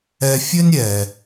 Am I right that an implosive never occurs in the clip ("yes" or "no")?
yes